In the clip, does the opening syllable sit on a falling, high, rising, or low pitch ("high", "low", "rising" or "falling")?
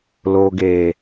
low